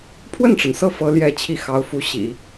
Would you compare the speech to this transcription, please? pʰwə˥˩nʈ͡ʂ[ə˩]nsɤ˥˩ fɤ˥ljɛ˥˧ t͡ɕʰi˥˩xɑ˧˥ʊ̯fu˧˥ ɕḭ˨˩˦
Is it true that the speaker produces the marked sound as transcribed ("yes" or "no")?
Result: yes